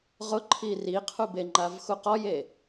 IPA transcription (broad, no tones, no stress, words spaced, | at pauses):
ʁʊǃʰi riqʰubeŋ͡ǃav xuqɔje